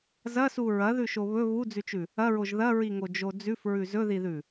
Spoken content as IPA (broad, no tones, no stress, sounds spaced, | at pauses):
z ɐ s u ɹ ɐ ð ʉ ʃ o β ɵ β u d͡z ʉ t͡ʃ ʉ | ɐ ɹ o ʒ ð ɐ ɹ i ŋ o d͡ʒ o d͡z ʉ f ɹ ʉ z ɵ ð i ð ʉ